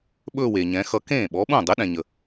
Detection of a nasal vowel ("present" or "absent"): present